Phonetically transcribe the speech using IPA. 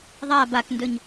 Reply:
ðˤa bakndɵɲ

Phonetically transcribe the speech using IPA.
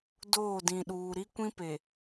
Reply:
doː˦˨dĩ˨ ɗuː˨ɾi˦ kʷĩ˦pe˨

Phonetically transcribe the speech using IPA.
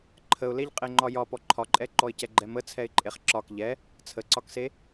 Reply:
ǃʰəʊ̯leʎqʼeŋ͡ǃɒ jɒpɔ ǃʰɒǃʼɛǃɔɪ̯ cɛɡ͡ǃɛmə t͡sʰɛɪ̯ǃʼeχǁɒk ʎɛ | t͡sʰəǀɒkse

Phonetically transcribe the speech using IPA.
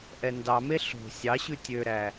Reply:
ʔɛndɑme ɬo̤ sʲɑ ɕʉtʲøɾæ

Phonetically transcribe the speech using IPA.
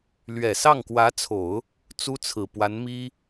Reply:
lɥɛ˨˩sɑ˥˩ŋkwä˧˥t͡sʰo˨˩˦ʊ̯ | t͡su˥t͡sʰɹ̩˨˩pwa˧˥n mi˥

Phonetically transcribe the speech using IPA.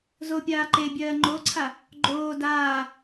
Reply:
zopʲaː ǃe bʲɜːŋ͡ǃoǀʰa | ɡ͡ǃoː daː

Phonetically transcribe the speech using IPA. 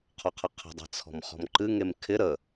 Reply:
qʰɔqʰəqʰə̤ dˤe̤t͡sʰɔ̤mχɔ̤mǃɨ ŋemkʰɪ ɾə

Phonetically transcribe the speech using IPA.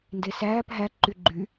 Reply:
ndesæːp ɦæ ǃyɡ͡ǃy

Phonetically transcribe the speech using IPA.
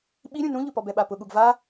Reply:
ɓiɾʲũ nũʎʊpɔb ɛɓapʊɠuɡ va

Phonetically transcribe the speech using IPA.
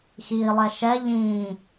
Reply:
xilˠɛ ʃɛ ʎĩ

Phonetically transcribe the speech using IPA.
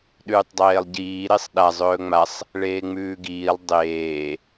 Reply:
ɗʉːtˤdˤeːlˠɟiː ɾesˤɗa zˤɵːŋ͡masˤ | ɭeːŋ͡mʉːɡiːlˠ dˤeː

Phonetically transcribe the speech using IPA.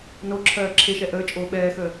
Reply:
no ǁʰɜːǁʰeʃɛ ʔəː t͡ʃʼoːɓɛːxəː

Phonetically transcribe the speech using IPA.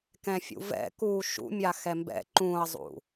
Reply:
kɛ̃fʲṵvɛ̰kuː ʃṵmʲa xɛmbɛ̰ ǃũɐ̯zˤṵ

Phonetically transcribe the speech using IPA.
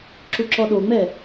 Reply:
ǁuǁɔɗoŋ͡mɛ

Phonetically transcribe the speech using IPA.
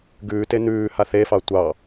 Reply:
ɡʉːte n̪ʉːha θefɑ tʷɑ

